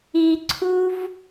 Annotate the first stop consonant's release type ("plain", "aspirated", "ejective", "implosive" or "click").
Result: click